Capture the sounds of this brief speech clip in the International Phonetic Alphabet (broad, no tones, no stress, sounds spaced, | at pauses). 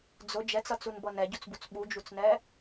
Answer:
d͡z ʊ d͡ʒ ɛ t͡s ʌ t͡s u n b ʌ n ɛ ɟ u t͡s b u t͡s ɓ u d͡ʒ u t͡s n ɛː